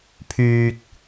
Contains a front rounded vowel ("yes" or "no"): yes